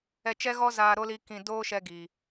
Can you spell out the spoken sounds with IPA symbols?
ɛ˧t͡ʃɛ˦ɣɔ˦ zaː˧ɾo˦ li˦kĩ˧ doː˦ʃɛ˧ ɡi˨

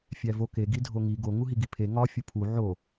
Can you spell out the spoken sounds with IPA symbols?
fʲævo ke ɡidʱoŋi ɡo ŋuɦiɡipʰe ŋɒ fʲupʰu ʕo

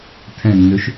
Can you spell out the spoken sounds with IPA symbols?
tʰɛ̃nːøʃ

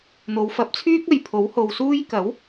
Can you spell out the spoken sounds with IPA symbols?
n̪o˨˧wfɐ˨˥p̚ t͡sʰyː˥k̚ɐ˨jpʰo˨˥w ho˧wsuː˥j kɐ˨˥w

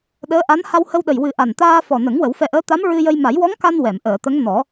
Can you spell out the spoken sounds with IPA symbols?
ɗəː˧˥ʔa˧˥n ha˧whə˧wɗə˨˩j wɨ˨˩˦ ʔa˨˩nt̪aː˧fɔ˨˩nə˨˩˦ŋ wə˨˩˦wfɛ˧ʔəː˧˥ t̪a˧˥mɹɨ˧jə˧j ma˨˩˦jwɔ˧˥ŋka˧n wɛ˨˩˨mʔəː˨˩˨t̪ə˧˥ŋ nɔ˨˩˦

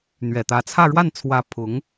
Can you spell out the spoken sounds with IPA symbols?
n̪ɥɛ˨˩t̪ä˧˥ t͡sʰä˥˧ ɻwa˥˩nt͡sʰwä˧˥ pʰʊ˧˥ŋ

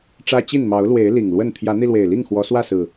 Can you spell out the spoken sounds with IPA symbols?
ʈ͡ʂä˦t͡ɕi˥˨n mɑ˨˦ʊ̯lwe˨˦ɪ̯ li˨˩ŋlwə˥˨n t̪ʰjä˨˦n̪i˧lwe˨˩ɪ̯li˥˨ŋ xwɔ˨˦swä˥˨sɹ̩˨˩

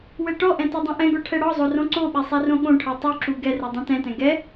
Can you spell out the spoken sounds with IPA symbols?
wɛʈɔʔɛ̃ todˤõʔɛ̃ɡɔ ʈʰɛɽɔzˤo rõǀoɓɛ sˤɛrõɠõʈʰɤ tˤuǁu ɡɛrɛ dˤɛ̃tɛ̃tɛ̃ ɡɛ

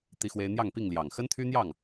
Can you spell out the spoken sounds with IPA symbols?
t̪i˦xwe˦ɪ̯ n̪jɑ˥˨ŋpi˥˨ŋljɑ˨˩ŋ xə˦nt̪ʰy˦n̪jɑ˥˨ŋ

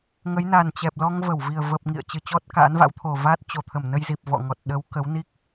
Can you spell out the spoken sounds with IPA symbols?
ŋə˨˦jna˨˩nt͡ɕɛ˨˩p̚lɔ˧ŋ və˧˩wvi˨˩ə̯ və˨˩p̚ŋḭ˧˨ə̯ t͡ɕɨ˧˩t͡ɕɔ˦˥t̚ka̰˧˥nva̰˧˥w t̪ʰo˨˩vaː˦˥t̚ t͡ɕo˧˩t̪ʰə˧˩m nə˧jzi˨˩p̚vɔ̰˧˨ŋɔ˨˩t̚ ɗə˨˦w kə˨˦wni˦˥k̚

